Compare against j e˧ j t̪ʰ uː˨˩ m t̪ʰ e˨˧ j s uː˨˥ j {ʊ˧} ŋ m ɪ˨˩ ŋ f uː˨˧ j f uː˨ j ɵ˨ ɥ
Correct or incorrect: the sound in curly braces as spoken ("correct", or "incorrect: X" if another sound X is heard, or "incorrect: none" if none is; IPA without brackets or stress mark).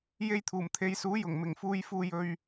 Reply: incorrect: ʊ˨˩